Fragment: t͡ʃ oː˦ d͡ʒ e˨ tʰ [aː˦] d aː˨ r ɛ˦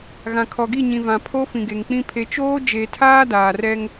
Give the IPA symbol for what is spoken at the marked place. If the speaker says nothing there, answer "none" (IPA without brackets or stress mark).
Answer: aː˦